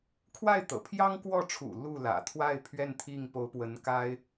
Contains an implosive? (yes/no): no